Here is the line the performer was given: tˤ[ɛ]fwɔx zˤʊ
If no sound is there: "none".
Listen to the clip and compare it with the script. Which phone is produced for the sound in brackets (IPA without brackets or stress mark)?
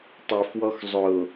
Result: e